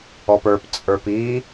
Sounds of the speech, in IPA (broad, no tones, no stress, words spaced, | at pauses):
ɔpə˞pt͡sʼə˞p i